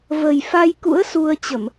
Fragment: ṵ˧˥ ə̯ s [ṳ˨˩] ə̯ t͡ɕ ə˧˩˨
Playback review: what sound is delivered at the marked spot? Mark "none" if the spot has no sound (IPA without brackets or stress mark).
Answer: u˧